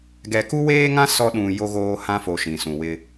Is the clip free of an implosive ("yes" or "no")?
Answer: no